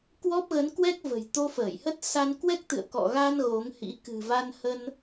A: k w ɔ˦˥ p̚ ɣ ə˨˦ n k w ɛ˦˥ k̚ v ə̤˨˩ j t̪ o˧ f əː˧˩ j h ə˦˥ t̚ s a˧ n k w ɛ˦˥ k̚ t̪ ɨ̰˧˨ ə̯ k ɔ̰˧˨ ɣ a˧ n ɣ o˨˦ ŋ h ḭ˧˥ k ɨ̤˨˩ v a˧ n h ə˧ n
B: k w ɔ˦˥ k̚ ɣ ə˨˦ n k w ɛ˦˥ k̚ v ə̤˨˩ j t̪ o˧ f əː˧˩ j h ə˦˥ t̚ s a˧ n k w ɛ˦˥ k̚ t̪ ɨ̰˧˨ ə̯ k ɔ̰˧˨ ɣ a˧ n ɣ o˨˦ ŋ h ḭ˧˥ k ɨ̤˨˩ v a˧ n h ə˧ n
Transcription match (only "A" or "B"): A